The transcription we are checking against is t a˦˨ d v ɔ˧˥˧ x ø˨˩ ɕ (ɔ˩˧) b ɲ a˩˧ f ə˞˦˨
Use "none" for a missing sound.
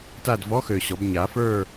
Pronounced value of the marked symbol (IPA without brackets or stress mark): ɔ˩˧